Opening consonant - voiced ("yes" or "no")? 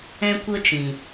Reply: no